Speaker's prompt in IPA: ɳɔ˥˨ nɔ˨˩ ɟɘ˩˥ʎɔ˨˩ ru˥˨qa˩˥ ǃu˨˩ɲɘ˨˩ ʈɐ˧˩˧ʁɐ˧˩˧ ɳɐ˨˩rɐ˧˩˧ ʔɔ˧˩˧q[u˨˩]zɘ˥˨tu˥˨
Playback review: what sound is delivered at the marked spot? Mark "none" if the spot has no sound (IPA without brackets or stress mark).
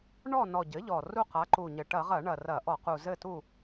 u˨˩